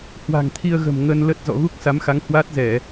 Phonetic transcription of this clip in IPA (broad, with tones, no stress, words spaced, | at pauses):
hwa̤˨˩ŋt̪ʰi˧ə̯ɣə̤˨˩m ŋə˧n lə˦˥t̚ zɔ̰˧˨ɣu˦˥k̚sa˨˦mxa˨˦ŋ hwaː˦˥t̚zɛ˧˩˨